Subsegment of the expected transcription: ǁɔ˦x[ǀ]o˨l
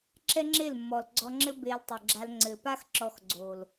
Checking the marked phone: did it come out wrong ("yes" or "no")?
yes